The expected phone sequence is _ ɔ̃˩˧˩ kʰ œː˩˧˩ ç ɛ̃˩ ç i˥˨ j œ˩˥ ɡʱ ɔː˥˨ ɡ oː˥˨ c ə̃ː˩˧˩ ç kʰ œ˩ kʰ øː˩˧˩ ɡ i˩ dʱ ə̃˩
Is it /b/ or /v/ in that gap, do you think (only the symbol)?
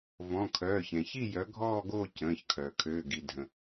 v